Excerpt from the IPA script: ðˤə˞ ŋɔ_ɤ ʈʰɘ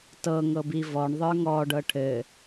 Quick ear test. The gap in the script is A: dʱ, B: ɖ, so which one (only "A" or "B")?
B